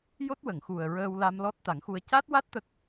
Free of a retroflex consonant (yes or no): yes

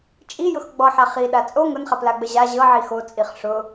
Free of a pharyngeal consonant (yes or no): no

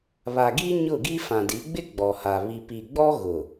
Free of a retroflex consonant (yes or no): yes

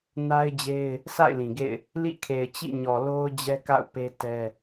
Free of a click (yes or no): yes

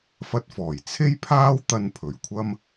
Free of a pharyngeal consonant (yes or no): yes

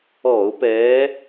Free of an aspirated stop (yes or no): yes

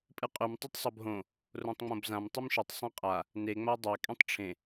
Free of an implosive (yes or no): yes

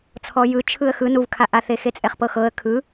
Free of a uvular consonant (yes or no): no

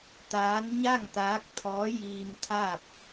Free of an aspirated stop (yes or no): no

